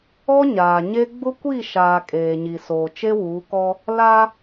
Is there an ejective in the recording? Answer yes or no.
yes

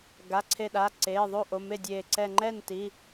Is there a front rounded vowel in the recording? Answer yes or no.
no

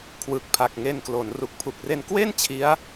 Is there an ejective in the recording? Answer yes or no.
no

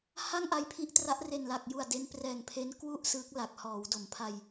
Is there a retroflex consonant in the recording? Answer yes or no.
no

